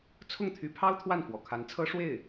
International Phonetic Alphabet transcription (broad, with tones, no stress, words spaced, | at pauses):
t͡sʰʊ˥˩ŋt̪ʰy˧˥pʰɑ˥ʊ̯ t̪ʰwa˥˩nfwɔ̰˨˩kʰa˧˥nt͡sʰɤ˥ ʂwe˥˩ɪ̯